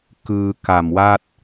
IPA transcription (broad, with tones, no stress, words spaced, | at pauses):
kɯː˧ka˨˩mwa˥˩t̚